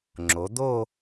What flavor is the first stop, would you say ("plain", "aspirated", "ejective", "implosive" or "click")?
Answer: click